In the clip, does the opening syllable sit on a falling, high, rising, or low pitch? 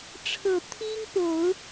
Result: low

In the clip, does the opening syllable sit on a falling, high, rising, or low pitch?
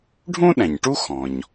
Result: high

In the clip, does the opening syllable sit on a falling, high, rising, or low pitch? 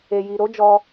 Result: low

